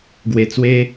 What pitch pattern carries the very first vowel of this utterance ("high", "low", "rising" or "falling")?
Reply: low